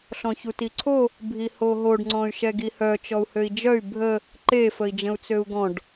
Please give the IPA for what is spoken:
ɬ ɔ̃ ç u t i ǀʰ o | bʱ i h o ɦ o ɖ ŋ͡ǀ ɔ̃ y̯ ʃ ɛ ɡ i h œ t͡ʃ ɔ u̯ h ø i̯ d͡ʒ œ y̯ bʱ ə | ǃ e f ə i̯ d͡ʒ ə̃ u̯ t͡s ø u̯ ɡ ɔ̃ ɖ

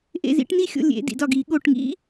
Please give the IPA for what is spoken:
ʔ ḛ˥˨ z ḭ˦˥ ʈ n i˥˨ xʲ o̰˥˨ lʲ ḛ˨˥ d ḭ˧˩˧ d ɒ˥˨ ɡ i˧˩˧ ɠ o˧˩ ʈ ŋ ḭ˦˥

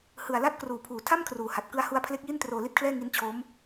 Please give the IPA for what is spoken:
h ɯ˨˩ a̯ l a˦˥ t̚ k r uː˨˩ pʰ uː˨˩ tʰ a˥˩ m kʰ r uː˨˩ h a˨˩ t̚ k ɯ˧ a̯ h u˦˥ a̯ pʰ l e˦˥ k̚ j i˥˩ n t r oː˧ l i˥˩ t̚ kʰ l ɛː˥˩ ŋ i˦˥ n t͡ɕʰ o˦˥ m

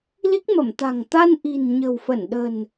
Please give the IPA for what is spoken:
l i˦˥ k̚ m ə˧˩ m t̪ a̤˨˩ ŋ t̪ a˧ n ʔ i̤˨˩ n ɲ ə̤˨˩ w f ə˧˩ n ɗ ə̤˨˩ n

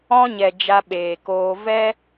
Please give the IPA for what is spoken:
ɔ̃˧ ɲ ɛ˨ d͡ʒ a˧ ɓ eː˨ k oː˧ v ɛ˦

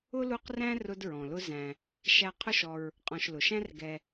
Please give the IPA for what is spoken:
ʊ˥ l u˦ q r æ̃˥ r ʊ˦ d ɹ ɔ̃˩ l ʊ˦ z æ̃˩ | ʃ æ˦ qʰ ʊ˥ ʃ ɔ˨ ɹ | qʼ ɔ̃˨ ʃ l ʊ˩ ʃ æ̃˥ r ɡ ɛ˨

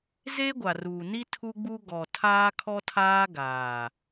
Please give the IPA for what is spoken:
z e˦ ɡʷ a˨ r uː˨ n i˦ tʰ u˦ ɡ͡b u˦ ɡ ɔ˨ tʰ aː˦ kʰ ɔ˦ tʰ aː˦ ɡ aː˨

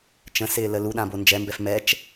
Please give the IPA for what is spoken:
t͡ʃ ə̃ s ɪː l ə l u ɗ ã b o n d͡ʒ ɛ m b ɛ f m ɛ t͡ʃ

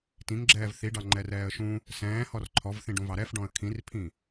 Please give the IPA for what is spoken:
t ĩ ŋ ɡ͡ǁ ɛː v θ i ɖ ɑ ŋ͡ǃ ɛ r ɛː ə̯ ʃ ũ | s ɛ̃ː h ɔ r ǃʰ ɔ v θ ĩ ɖ ũ v ɑ ɾ ɛ f ɖ ɔ̃ ə̯ kʰ ĩ r pʰ ĩ

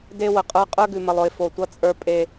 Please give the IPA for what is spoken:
d e˦ w ə˨ qʼ ə˞˦ qʼ ə˞˦ ɡ ʉ˨ m ə˨ lˠ ʊ˨ ɪ̯ f o˨ tʷ ʌ˦ t͡sʼ ə˞˦ pʼ e˨

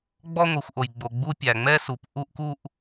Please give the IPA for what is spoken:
ɡ͡b ɔ˥˧ ŋʷ i˩ xʷ ʔ o˩ j ɡ͡b o˩ ɡ͡b u˥˧ pʲ æ˩ ŋ͡m ɛ˥˧ s u˩ p ʔ u˥˧ ʔ k u˥˧ ʔ

